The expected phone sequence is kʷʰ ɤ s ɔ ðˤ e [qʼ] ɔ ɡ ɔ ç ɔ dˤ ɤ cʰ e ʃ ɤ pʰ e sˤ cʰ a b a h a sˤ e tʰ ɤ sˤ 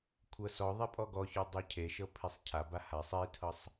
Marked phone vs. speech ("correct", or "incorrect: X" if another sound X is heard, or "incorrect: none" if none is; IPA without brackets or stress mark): incorrect: pʼ